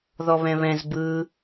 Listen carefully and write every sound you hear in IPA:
ð ɔ β ɛ̃ β ɛ̃ z b ɯ

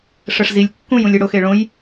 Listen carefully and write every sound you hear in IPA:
ʂ ə ʂ z i lʲ kː ũ j ũ lʲ e ɽ o x e ɭ õ j

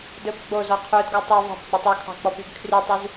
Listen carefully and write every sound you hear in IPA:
d ɵ b ɡ͡b o z ɔ qʰ u d ɡ ɔ tˤ u v ɑ̤ b ɡ͡b ɵ tˤ ɔ kʰ ɑ̤ k͡p ɔ p y ɡ kʰ r y tˤ u z

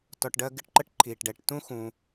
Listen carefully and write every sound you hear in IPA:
t ɔ˨ ʈ ɖ ɜ˦ ɡ ɪ˦ ʈ ǃ ə˥ ʈ ǃʰ iː˩ ʈ ɖ ɛ˩ ʈ t ũ˥ x ũ˨

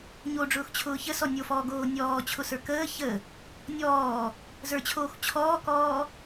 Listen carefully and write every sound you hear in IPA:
ɲ o ɖ͡ʐ ʊː x t͡ɕʰ ʊː ç ə s ɔ nʲ o f ɔː ɡ oː nʲ ɔː t͡ɕʰ ʊ s ə˞ k əː ç ə | nʲ ɔː | z ə˞ t͡ɕʰ oː x t͡ɕʰ ɔː k ɔː

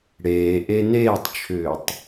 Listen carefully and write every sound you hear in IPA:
ɽ eː ʔ e n eː tˤ t͡ʃʰ ʏː tˤ

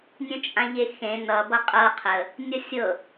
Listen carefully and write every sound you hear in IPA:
nʲ œ̃ t͡ʃʼ ã ʎ e x ẽ n ʌ b ʌ qʼ ɤ qʰ ə | nʲ ʌ sʲ ɤ

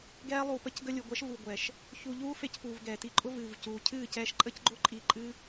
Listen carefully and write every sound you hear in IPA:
ɡ ɛː˦ lˠ uː˨ p ə˧ c ɡ ə˧ lʲ u˨ ɡʷ ɛ˨˦ ʃ v uː˨ ɡʷ ɛː˨ ʃ | ç u˧ ʎ uː˦ f e˧ c p uː˨ v ɡ ɛː˨ t i˧ ǃʼ ʊ˦ v ɨː˨ v c uː˨ cʰ ɨː˦˨ c ɛː˧ ʃ ǃʼ ə˦ c ɡ͡ǃ ʊ˦ ǃʼ i˧ ǃʼ ɨ˦

